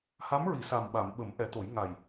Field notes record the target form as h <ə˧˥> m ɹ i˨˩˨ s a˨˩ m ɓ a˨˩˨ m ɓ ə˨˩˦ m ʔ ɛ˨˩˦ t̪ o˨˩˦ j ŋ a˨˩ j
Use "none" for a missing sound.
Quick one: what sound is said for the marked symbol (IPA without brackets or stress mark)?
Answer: a˧˥